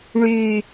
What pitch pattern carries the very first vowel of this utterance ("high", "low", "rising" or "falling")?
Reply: falling